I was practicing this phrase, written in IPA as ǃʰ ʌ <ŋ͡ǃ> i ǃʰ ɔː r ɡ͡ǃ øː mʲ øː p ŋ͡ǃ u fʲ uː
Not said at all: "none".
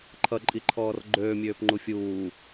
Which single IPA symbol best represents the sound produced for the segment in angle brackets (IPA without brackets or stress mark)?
ǃʼ